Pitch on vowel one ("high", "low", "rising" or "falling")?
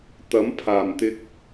rising